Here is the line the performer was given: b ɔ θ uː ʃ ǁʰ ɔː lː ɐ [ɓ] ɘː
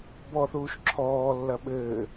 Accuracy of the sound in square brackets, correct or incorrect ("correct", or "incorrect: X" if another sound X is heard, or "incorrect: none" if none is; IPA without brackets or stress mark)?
correct